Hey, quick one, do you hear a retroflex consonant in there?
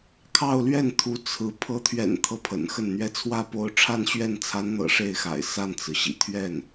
yes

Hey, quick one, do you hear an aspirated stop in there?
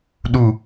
no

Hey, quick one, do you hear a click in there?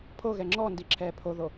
yes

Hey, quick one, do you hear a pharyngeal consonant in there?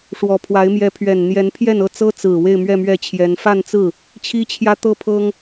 no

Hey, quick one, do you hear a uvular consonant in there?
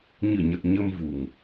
no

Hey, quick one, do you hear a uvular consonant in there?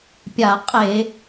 yes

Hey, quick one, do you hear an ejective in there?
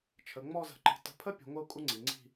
yes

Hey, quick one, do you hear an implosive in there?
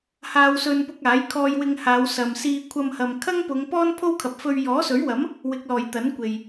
no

